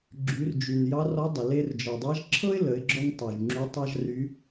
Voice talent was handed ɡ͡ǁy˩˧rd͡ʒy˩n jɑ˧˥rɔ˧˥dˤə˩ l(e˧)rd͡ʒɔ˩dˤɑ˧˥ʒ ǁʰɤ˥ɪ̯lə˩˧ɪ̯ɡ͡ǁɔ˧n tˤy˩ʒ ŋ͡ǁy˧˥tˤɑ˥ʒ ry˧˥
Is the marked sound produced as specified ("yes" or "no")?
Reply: yes